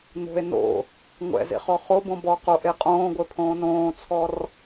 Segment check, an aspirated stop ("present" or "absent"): present